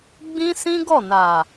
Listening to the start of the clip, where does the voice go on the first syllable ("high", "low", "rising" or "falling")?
high